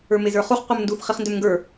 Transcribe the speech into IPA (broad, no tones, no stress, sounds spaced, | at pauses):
ə˞ m e z ə˞ χ u χ qʷ ə˞ m n d u θ χ i χ n d ø m ŋ ɡ ə˞